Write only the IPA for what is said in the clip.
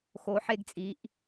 x o˩˧ ħ e˧ ɡ t͡sʼ i˩˧ ʔ

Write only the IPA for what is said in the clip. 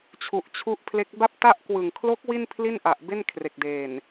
t͡ɕʰ u˨˩ ʔ t͡ɕʰ u˦˥ ʔ pʰ l e˦˥ k̚ b a˥˩ p̚ t a˥˩ ʔ k w ɯ˨˩ ŋ kʰ l o˦˥ k̚ w i˥˩ n pʰ l i˥˩ n ʔ a˨˩ ʔ b e˥˩ n kʰ r e˨˩ k̚ d eː˨˩ n

